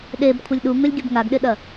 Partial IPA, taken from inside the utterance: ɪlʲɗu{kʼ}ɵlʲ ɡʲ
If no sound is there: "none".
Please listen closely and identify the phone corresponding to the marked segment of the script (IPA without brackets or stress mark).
ŋ